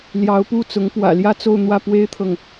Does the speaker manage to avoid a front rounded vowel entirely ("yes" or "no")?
yes